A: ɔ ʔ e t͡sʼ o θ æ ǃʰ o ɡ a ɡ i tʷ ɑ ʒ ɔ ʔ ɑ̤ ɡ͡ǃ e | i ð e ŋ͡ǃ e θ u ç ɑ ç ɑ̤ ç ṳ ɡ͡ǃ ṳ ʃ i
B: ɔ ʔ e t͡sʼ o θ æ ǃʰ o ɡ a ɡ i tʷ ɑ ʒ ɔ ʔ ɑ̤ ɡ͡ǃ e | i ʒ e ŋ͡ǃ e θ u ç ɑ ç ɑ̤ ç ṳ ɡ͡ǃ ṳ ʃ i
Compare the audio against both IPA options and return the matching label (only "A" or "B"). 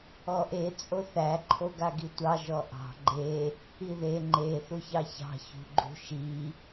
A